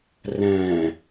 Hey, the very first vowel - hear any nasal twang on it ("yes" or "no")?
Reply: yes